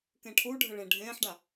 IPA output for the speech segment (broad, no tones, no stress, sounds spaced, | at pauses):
k ẽ ʈʰ u ɖʱ ə ɭ ẽ ɖʱ ẽː ħ ɖ a